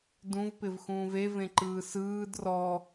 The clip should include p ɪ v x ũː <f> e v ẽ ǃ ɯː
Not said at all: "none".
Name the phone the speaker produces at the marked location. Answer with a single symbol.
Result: v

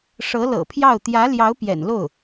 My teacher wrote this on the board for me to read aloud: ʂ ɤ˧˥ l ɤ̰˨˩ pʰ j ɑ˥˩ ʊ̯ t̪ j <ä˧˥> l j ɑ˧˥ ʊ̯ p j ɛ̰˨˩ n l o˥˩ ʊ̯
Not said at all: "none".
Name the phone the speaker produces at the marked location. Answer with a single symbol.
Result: ä˧˥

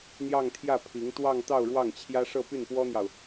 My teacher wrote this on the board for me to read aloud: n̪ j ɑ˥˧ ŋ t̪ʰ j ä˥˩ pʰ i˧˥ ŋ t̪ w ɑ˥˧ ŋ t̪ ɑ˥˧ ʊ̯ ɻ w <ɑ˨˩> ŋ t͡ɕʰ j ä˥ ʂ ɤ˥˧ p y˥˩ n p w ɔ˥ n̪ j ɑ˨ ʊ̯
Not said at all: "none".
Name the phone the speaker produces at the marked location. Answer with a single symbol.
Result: ɑ˥˩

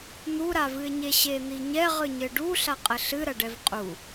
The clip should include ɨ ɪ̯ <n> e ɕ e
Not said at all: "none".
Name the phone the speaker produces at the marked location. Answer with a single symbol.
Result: ɲ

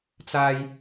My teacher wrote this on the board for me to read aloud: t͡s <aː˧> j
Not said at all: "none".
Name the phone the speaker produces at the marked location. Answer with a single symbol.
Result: aː˧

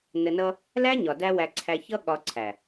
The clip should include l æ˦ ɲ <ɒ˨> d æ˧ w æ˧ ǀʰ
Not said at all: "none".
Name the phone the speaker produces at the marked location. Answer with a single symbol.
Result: ɒ˨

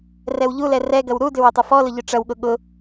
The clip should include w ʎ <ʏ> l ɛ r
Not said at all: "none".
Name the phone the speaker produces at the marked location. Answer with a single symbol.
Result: u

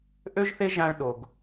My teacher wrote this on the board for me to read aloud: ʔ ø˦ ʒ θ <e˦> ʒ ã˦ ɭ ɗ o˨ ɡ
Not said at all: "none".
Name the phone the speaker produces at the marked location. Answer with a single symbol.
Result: e˦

